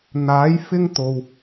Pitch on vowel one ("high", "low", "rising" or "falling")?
rising